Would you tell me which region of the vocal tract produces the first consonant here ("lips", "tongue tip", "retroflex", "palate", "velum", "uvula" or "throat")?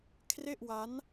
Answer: velum